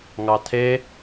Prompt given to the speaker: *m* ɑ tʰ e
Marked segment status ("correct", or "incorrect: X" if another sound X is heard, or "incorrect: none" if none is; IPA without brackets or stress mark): incorrect: ŋ